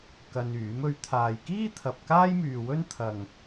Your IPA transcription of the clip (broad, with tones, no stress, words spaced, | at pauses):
kɐ˧nyː˨˥mɵ˧ɥ t̪ʰaː˨jkiː˥t̪ʰɐ˨p̚ kaː˥jmyː˨wɵ˥n t̪ʰɐ˨ŋ